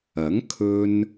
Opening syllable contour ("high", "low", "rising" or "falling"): rising